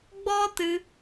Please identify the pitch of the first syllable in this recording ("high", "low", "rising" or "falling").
high